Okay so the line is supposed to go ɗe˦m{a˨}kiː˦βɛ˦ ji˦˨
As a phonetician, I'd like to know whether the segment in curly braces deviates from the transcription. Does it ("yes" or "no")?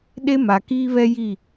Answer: no